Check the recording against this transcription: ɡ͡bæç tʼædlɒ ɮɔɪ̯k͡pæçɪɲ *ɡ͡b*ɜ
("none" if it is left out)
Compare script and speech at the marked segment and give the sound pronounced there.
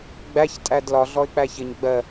ɡ͡b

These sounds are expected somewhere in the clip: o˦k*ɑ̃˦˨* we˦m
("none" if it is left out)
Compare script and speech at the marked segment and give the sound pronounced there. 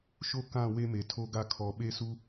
ã˦˨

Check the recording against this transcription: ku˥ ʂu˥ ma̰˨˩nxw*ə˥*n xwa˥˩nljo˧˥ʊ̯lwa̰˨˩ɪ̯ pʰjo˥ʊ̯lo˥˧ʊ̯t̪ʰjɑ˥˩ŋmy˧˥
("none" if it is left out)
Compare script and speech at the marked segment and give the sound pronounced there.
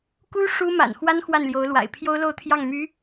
a˥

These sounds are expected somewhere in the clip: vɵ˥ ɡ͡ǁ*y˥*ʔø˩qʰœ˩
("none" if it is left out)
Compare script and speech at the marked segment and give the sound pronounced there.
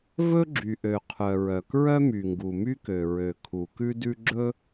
y˩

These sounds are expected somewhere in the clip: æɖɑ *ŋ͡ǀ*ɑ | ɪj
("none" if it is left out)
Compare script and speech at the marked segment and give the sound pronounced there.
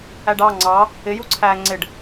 ŋ͡ǀ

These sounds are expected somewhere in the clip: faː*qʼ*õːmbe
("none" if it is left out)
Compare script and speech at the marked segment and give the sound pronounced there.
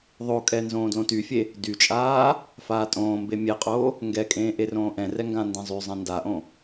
tʼ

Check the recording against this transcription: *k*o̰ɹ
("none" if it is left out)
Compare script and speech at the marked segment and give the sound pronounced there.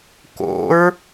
k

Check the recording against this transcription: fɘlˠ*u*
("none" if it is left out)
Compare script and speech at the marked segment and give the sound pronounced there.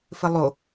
o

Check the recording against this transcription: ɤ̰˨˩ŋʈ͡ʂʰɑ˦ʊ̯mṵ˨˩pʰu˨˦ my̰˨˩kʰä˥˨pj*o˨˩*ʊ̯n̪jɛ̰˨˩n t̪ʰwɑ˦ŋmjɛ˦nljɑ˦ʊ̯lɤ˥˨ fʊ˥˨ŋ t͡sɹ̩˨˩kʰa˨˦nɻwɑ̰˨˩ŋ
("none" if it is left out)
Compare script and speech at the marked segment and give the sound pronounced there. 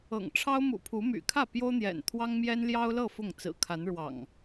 o˦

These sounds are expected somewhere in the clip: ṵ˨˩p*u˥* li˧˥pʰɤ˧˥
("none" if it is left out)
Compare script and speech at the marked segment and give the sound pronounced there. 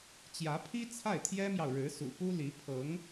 u˥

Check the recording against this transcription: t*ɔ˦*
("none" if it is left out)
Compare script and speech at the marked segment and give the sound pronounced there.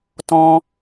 ɔ̃˦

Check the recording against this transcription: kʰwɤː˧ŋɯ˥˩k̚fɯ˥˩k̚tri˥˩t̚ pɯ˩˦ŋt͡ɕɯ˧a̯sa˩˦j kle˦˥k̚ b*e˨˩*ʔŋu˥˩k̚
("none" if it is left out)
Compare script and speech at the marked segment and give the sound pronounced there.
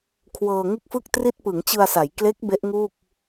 e˦˥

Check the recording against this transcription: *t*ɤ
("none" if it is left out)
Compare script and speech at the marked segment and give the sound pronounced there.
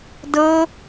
d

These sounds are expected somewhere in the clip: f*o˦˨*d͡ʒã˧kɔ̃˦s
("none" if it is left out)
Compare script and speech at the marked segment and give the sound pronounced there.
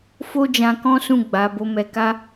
o˦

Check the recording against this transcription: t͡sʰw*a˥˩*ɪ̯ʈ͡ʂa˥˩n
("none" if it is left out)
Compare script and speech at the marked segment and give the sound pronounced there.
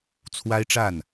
a˥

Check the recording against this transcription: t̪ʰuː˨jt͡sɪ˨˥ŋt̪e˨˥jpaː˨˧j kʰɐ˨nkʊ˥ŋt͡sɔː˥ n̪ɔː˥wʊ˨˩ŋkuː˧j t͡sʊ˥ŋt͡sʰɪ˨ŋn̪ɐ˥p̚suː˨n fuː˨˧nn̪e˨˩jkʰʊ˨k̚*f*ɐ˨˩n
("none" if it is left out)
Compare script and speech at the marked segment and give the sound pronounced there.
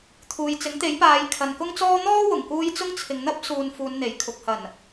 h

